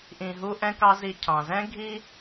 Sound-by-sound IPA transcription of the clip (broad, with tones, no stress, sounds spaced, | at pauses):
ʔ ĩ˨ ɦ u˦ ʔ ɛ̃˦ k ɑ˦ z i˨ cʰ ɑ̃˩ z ɛ̃˥ ɡʱ i˥